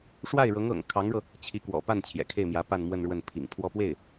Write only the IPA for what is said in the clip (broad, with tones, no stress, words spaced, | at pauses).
ʂwa˥˩ɪ̯ɻɤ˧˥ŋɤ̰˨˩ŋ kʰɑ˧˥ŋɻɤ˧ | t͡ɕʰi˧˥kwɔ̰˨˩pa˥˩n t͡ɕʰjɛ̰˨˩kʰe˥˩ɪ̯mjä˧˥ pa˥˧nmwə˥˧nɻwə˥˩n pʰḭ˨˩ŋpʰwɔ˥˧pwe˥˩ɪ̯